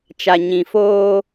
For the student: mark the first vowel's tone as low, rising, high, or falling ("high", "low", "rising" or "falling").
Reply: low